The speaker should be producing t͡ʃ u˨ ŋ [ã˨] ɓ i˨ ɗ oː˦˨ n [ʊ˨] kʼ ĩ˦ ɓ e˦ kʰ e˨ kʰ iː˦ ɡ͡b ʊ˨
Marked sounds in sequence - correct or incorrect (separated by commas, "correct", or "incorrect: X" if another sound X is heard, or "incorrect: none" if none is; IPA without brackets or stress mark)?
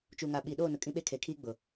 incorrect: a˨, correct